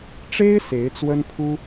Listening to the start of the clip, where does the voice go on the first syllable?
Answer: high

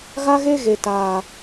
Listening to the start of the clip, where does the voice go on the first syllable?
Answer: high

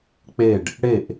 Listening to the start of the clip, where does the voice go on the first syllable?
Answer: falling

